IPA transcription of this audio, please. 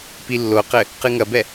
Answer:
pilːoqɘ | qɨŋɐbɛ

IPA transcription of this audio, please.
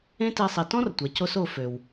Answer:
ẽ˥ te˧sˤi˩ tɔ̃˥rtʷɛ˩co˧s o˧fø˩w

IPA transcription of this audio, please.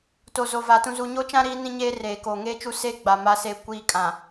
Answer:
to˨zo˨va˨ tũ˨zu˨ɲo˦t͡ʃã˦ ɾiː˦nĩ˦ɲeː˦reː˨ ko˨ ŋeː˦t͡ʃu˦ seː˦ɡ͡ba˨ ma˦seː˦kʷiː˦ kʼã˨

